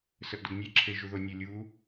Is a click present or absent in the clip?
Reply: present